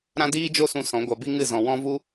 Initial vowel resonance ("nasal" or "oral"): nasal